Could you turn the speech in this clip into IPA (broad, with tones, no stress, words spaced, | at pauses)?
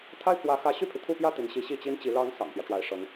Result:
t̪ʰa˥˩ɪ̯pʰwä˧˥xä˧˥ ɕy˥˩pʰi˩t̪ʰu˥˧pjä˥˩ t̪i˧˥nɕi˧˥ ɕi˥˩t͡ɕi˥nt͡ɕi˧˥ lɑ˧˥ŋ sɑ̰˨˩ŋpjä˦ ʈ͡ʂwa˧˥ɪ̯ʂɤ˧˥ŋ